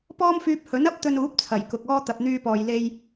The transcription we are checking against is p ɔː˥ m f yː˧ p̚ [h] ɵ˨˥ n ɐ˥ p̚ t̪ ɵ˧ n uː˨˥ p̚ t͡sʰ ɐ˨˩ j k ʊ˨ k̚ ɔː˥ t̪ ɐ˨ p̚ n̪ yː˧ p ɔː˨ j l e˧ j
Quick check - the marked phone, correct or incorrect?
correct